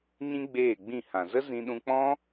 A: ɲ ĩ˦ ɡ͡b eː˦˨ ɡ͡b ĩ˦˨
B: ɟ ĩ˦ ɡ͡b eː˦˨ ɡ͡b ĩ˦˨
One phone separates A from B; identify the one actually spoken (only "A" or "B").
A